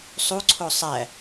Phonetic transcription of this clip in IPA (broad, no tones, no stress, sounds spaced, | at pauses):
sˤ u ǀʰ o sˤ æ